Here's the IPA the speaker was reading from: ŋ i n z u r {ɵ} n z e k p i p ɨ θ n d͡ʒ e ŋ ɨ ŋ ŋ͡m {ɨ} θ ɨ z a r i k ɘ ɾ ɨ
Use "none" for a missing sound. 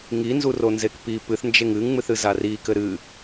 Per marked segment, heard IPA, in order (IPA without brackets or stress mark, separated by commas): o, ɨ